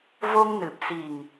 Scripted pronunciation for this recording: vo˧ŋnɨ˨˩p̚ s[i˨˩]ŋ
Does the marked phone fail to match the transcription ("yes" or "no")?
no